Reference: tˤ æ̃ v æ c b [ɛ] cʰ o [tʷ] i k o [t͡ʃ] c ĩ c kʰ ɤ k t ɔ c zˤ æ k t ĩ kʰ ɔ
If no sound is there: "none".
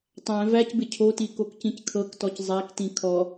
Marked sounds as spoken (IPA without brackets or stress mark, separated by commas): ɪ, t, k